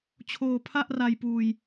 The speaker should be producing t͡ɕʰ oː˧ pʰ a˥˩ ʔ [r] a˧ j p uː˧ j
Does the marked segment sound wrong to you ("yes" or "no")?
no